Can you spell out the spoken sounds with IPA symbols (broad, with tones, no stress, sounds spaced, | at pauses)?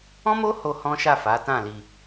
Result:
ɔ̃˦ m o˦ h o˧ h ɔ̃˦ ʃ a˦˨ f a˨˦ t ã˦˨ l i˧